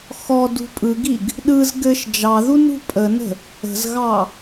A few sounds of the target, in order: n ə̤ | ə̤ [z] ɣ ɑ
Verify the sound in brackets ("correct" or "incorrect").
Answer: correct